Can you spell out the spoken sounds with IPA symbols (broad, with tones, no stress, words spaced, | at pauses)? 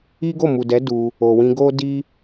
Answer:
i˦ɡo˦˨ mu˨dɛ˨˦ du˧ | o˨wĩ˧ ɡo˦ di˦